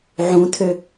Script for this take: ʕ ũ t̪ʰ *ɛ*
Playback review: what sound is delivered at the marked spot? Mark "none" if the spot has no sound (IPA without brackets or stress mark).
ø